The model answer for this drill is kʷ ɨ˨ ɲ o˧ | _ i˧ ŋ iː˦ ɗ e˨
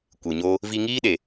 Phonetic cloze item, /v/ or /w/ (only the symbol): v